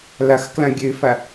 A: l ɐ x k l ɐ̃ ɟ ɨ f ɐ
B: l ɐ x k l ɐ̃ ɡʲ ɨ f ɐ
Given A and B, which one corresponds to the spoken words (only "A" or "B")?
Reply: B